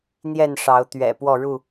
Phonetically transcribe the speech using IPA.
n̪jɛ˥˨nʂɑ˨˦ʊ̯t̪ɥɛ̰˨˩ pwɔ˥˨ɻu˥˨

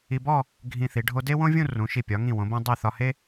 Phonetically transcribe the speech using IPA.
i˧bɔ˥˧ | ɡʱĩ˧θi˩˧ ɖʱo˧ de˥wõ˥vʲũ˥˧ rũ˩˧ʃi˧˩ pʲɒ˩˧ŋĩ˧˩ wõ˩˧bõ˧ dˤi˧˩ θɒ˧he˥

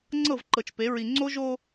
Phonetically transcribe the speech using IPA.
ŋ͡ǀɤ˦˨vǃɤ˨t͡ʃpe˨˦ ɹi˨ŋ͡ǀo˦ʒo˦

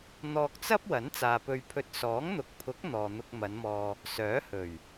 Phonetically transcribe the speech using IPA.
n̪ɔː˧k̚t͡sɐ˥p̚ wɐ˨˥nt͡saː˨pɵ˧ɥpʰɵ˧t̚ sɔː˨˥ŋ n̪ʊ˨k̚pʰʊ˨˥k̚ n̪ɔː˨n̪ʊ˧k̚mɐ˨˧nmɔː˧ | sœː˨˥hɵ˨˩ɥ

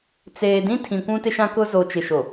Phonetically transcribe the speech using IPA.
t͡seː˨dĩ˦ tʰĩ˨ kʷũ˦tɪ˦ ʃã˦kʊ˦zo˨ t͡ʃɪ˨ʃo˨

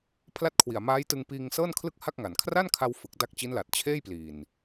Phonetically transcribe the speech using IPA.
pʰla˥˩t̚kʰwi˨˩a̯ maː˦˥jtɯ˧ŋpiː˧ŋ sɤː˥˩nkʰlɯ˥˩k̚ha˥˩k̚ŋa˨˩n kʰra˥˩nkʰa˧w fɯ˨˩k̚ da˦˥k̚t͡ɕi˦˥nla˨˩t̚ t͡ɕʰeː˥˩jpliː˨˩n

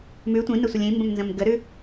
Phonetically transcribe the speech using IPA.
mʉ tʷĩnəsʷəlʲ ĩmbə̃mnzə̃m ɡəɾʉ

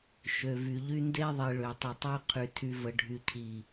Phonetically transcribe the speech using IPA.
ʃø˨vy˨ʎy˦ nde˦ðˤi˨ ɭø˨tˤə˨tˤø˦ qʰy˨tʰy˨və˨ ɖʱy˨cʰi˨

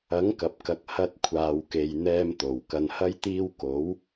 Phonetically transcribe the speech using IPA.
ɐ˨˥ŋ kɐ˨p̚kɐ˨˥k̚ hɐ˧t̚ kʷʰaː˨wke˨jn̪ɛː˧m t̪o˨˩wkɐ˧nhɐ˥jt̪iː˥w ko˨˥w

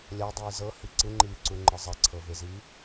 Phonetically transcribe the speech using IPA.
lʲadˤiː zɤhi ǀɯŋ͡ǃiːǀuŋ͡ǃɯ zˤɛǀʰɤveziː

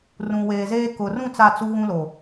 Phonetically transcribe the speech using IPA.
rũ˨weː˨zeː˦ kʊ˨rũ˦˨ t͡sa˦˨t͡su˦ɣũ˦lo˨

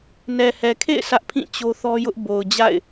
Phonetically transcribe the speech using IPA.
nɛ˨hɛ˨kʰḛ˦˨ɪ̯ sä˦ʔpʰĩ˦˨ t͡ɕo˦θɔ˦jʊ˦ʔ bo˨ʊ̯ d͡ʑa̰˦˨ɪ̯

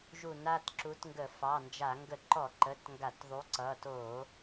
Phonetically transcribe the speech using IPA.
ʒu˧˩˧na˩˧˩tǁu˨˥tŋɡə˧˩˧ fɑ˩˧˩nd͡ʒa˧˩˧ ŋɡə˧˩˧ǃɔ˧˩˧ǃə˩˧˩t ŋɡa˧˩˧tðˤu˨˥ǀʌ˩˧˩ to˧˩˧

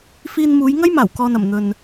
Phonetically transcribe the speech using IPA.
fiː˧nmuː˨˧jŋɐ˥jmaː˨˩w kɔː˨nɐ˨˩m n̪ɵ˨n

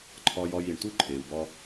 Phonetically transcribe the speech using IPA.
ǃʰɒ˧jɒ˧j i˨ɳtu˦ ǃʰe˨u̯ bɒ˧

